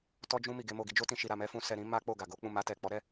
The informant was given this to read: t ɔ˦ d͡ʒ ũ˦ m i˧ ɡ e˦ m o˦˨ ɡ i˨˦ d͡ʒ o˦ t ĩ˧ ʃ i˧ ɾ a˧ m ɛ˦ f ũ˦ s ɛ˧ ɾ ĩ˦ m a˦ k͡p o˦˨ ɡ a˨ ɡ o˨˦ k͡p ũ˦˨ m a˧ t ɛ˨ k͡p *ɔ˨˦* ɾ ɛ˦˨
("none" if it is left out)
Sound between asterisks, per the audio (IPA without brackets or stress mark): ɔ˨˦